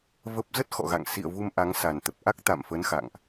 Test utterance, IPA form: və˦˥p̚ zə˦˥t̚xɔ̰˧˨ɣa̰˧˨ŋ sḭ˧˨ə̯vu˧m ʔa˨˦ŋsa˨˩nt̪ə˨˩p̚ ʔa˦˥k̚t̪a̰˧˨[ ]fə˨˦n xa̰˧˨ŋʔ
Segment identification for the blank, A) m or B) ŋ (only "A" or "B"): A